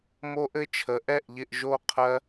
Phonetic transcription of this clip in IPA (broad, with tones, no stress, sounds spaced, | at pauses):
m o˦ ʔ ɘ˦ t͡ʃʰ ə˨˦ ʔ ɛ˦˨ ʔ ʎ ɪ˦˨ ʔ ʒ o˦˨ qʰ ɜ˦